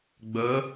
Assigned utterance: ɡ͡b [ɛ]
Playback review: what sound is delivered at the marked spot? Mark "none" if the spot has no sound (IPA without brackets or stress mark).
œ